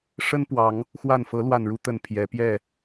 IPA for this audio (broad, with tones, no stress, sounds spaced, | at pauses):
ʂ ə˦ n p w ɑ˨˦ ŋ | x w a˥˨ n f ɤ˨˦ l w a˨˩ n ɻ u˨˦ t̪ ə˨˩ n pʰ j ɛ˨˦ p j ɛ˥˨